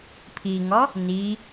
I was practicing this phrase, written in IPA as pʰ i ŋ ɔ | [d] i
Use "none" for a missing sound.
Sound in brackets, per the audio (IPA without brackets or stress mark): n